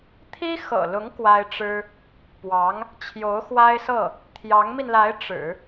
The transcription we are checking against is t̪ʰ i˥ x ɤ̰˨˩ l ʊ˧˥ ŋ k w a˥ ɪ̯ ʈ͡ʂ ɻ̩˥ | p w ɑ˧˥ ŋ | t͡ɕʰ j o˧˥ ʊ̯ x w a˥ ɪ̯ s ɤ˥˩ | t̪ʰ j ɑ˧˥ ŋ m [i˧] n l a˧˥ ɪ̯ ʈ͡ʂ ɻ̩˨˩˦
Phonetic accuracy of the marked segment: correct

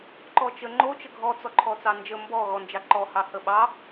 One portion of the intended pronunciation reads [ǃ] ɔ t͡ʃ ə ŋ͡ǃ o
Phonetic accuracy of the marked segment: correct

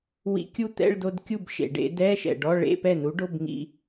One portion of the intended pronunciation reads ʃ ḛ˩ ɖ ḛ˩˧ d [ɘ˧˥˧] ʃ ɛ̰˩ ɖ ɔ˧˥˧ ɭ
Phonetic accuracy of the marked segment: incorrect: ɛ˧˥˧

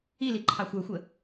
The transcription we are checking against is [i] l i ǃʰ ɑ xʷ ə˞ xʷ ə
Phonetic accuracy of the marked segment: correct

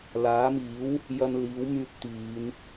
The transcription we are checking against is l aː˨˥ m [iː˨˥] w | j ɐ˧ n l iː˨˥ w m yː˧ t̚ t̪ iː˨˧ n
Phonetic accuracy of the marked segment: correct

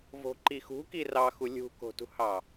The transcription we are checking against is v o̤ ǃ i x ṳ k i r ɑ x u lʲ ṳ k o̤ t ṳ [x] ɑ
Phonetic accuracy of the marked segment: incorrect: h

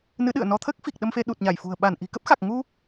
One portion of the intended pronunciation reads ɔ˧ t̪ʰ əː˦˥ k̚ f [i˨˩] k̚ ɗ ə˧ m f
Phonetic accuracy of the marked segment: correct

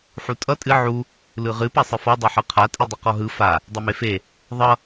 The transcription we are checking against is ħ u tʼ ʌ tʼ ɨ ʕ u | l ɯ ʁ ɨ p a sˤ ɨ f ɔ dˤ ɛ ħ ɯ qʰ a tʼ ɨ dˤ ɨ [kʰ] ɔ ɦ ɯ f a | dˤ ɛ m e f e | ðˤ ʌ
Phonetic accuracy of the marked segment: incorrect: q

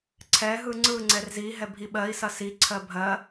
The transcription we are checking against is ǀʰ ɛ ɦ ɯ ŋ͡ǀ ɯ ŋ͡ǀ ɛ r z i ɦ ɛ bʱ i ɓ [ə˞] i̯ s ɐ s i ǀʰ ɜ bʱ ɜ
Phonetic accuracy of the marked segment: incorrect: ɜ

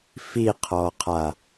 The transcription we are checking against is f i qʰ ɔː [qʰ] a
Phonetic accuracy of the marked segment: correct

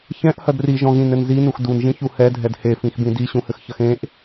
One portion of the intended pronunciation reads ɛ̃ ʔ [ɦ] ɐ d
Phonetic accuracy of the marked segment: incorrect: h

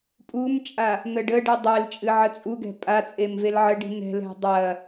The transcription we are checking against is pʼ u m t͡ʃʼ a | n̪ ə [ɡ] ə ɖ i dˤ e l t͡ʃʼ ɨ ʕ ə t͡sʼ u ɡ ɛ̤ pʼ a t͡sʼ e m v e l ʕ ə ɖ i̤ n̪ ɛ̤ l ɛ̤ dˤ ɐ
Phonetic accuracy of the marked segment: incorrect: ɖ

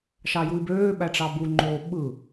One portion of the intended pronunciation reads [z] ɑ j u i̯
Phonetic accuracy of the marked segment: incorrect: ʃ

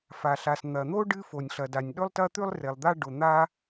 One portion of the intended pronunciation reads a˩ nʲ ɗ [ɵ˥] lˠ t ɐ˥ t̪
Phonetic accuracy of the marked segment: correct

